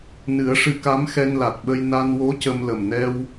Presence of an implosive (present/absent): present